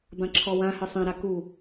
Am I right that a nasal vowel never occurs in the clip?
no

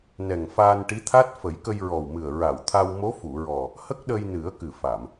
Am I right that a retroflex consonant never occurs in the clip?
no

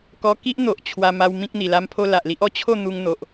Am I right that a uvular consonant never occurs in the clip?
yes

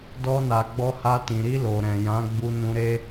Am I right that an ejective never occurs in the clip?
yes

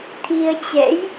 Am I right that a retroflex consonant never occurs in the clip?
yes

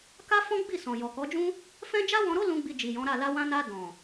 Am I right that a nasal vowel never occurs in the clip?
no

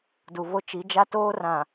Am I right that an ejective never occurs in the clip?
yes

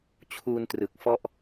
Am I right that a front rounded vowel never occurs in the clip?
yes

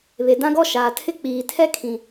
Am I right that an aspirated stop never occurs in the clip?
no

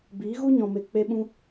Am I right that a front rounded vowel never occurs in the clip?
yes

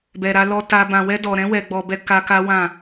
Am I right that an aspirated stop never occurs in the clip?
yes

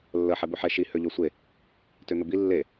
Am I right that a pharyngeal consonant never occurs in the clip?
no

